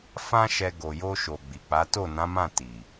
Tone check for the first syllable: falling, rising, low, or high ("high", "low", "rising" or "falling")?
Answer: high